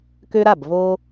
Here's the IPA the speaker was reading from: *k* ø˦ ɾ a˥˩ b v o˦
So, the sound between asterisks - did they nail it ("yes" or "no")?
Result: yes